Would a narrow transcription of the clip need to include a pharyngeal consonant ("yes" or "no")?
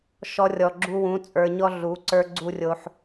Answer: yes